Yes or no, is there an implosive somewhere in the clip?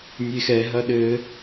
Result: yes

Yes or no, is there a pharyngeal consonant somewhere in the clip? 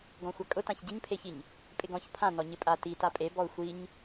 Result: no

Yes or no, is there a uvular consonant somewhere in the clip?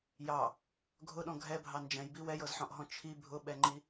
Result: no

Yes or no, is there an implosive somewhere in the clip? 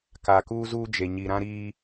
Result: no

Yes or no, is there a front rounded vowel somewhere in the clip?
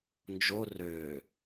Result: yes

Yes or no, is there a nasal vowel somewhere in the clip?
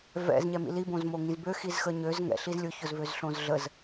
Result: yes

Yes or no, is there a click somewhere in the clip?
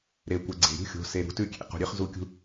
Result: yes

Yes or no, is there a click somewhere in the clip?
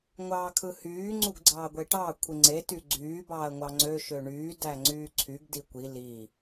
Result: yes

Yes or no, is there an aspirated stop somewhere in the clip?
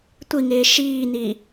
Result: no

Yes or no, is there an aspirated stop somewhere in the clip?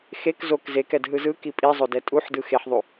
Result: no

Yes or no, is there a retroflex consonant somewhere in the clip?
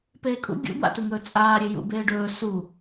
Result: yes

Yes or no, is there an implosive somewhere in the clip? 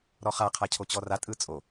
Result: no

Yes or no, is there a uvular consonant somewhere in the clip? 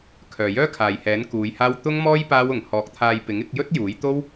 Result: no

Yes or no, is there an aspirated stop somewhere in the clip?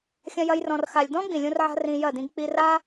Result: no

